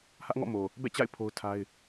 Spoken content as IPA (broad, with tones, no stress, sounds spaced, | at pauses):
h ä˦ ʔ ŋ ɔ̰˦˨ m o˨ | b ɛ̰˦˨ t͡ɕ a̰˦˨ ɪ̯ pʰ o˦ ʊ̯ tʰ a˦ ɪ̯